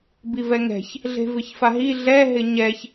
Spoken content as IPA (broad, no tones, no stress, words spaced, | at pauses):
bivɛŋɛ̤ç | ɮe̤vɪçfaɦi ɮɛ ɦɪɲɛç